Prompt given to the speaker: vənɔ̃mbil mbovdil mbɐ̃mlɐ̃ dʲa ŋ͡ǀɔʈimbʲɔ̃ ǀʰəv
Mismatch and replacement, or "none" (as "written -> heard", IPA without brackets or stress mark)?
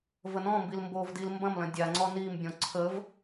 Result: ʈ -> n